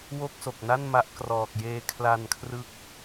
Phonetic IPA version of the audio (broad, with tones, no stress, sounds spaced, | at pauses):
w o˥˩ k̚ s o˨˩ k̚ n a˥˩ n m a˦˥ ʔ k r ɔː˨˩ k̚ j eː˧ kʰ l a˧ n kʰ r ɯ˦˥ k̚